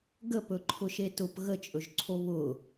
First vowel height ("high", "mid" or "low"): mid